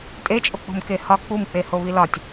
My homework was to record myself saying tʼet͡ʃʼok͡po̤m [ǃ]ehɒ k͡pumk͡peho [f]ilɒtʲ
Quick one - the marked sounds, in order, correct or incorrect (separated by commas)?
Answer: incorrect, incorrect